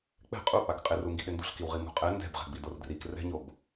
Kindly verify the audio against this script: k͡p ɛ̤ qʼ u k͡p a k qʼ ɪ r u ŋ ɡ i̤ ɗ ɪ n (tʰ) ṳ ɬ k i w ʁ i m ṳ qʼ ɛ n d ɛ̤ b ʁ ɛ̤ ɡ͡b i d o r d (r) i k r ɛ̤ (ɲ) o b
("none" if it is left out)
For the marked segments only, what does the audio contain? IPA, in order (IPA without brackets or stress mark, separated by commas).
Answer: d, r, ɲ